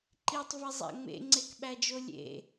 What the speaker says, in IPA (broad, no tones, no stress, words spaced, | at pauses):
ǃitˤvezˤæ̰ ŋ͡mḛŋ͡ǀekɓæd͡ʒo lʲḛ